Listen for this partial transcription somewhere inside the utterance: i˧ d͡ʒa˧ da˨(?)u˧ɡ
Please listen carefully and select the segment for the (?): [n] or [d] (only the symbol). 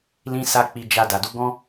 d